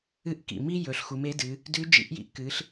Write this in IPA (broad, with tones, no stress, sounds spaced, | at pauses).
ɨ˧˥ ʔ k ḭ˩ m i˥ j ɵ˩˧ ɬ x u˩˧ m e˧˥ d ɨ˩˧ | d ʉ˧˥ d͡ʒ ḭ˧˥ ʔ j ḭ˧ ʔ k ɨ˩˧ ɬ